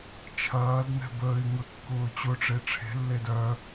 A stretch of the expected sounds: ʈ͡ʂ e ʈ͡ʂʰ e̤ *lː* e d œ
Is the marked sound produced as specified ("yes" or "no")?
yes